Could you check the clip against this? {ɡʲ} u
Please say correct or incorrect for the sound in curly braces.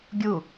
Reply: correct